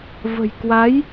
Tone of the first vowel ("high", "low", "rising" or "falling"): low